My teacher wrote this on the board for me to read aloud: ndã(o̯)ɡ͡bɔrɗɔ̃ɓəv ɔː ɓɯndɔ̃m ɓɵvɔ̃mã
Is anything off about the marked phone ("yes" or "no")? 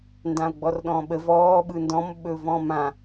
no